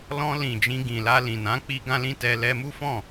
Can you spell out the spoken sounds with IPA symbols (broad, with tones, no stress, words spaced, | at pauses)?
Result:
lɔ̃˧lĩ˨ d͡ʒĩ˧ɡĩ˨la˧lĩ˨ nã˨˦ k͡pi˦ɡã˦lĩ˦ tɛ˧ lɛ˧mu˦fɔ̃˦˨